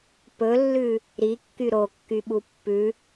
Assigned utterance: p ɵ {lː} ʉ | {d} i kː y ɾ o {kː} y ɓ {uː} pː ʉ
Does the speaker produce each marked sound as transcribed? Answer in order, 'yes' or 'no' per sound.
yes, no, yes, no

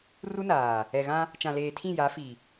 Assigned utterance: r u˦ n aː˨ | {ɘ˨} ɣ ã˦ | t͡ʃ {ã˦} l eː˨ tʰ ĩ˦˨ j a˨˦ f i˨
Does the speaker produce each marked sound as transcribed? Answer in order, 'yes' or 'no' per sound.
no, no

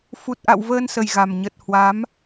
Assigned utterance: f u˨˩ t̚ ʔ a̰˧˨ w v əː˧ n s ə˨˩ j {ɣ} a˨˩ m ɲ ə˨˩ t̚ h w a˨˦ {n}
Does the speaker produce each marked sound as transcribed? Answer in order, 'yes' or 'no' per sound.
yes, no

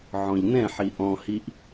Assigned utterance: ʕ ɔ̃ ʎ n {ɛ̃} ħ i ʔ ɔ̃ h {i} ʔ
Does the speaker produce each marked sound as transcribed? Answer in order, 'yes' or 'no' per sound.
yes, yes

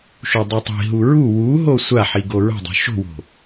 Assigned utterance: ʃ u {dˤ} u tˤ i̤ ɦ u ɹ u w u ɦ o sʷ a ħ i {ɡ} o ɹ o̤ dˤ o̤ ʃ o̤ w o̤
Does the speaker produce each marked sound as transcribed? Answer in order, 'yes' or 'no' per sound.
yes, yes

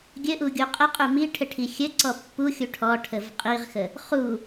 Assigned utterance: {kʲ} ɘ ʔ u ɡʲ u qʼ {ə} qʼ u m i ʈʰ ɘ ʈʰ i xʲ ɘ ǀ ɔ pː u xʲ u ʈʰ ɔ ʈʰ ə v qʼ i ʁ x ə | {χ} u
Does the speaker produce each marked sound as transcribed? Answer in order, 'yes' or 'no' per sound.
no, yes, yes

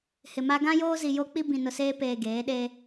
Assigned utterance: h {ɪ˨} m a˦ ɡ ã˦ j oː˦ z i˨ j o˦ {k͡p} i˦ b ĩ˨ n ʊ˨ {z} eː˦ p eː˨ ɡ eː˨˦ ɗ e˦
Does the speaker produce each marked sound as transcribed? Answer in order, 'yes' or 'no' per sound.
yes, yes, no

